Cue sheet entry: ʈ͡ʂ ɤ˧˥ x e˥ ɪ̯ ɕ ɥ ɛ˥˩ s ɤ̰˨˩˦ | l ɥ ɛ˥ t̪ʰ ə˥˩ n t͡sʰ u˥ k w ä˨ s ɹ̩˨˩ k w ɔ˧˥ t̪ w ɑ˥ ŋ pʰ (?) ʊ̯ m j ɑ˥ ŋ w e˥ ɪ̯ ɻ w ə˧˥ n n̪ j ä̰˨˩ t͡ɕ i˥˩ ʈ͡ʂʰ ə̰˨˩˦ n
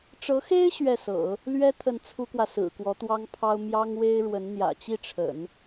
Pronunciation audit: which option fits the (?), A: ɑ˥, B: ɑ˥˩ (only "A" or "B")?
A